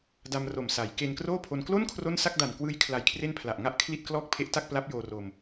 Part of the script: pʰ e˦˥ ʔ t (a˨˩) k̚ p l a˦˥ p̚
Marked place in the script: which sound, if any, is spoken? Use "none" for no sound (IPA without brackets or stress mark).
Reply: a˥˩